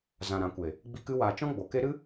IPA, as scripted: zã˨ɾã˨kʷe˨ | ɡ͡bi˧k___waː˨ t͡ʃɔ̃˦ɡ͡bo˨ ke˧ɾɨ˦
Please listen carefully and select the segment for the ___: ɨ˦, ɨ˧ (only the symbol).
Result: ɨ˧